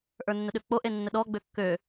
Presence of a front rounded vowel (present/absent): present